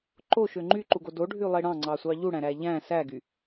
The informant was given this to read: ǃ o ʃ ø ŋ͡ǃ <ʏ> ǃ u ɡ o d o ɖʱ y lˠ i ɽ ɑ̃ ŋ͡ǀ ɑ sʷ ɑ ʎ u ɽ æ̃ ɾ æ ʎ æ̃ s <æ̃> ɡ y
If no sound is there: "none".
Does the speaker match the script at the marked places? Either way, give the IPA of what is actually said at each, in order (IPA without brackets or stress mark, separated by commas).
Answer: y, æ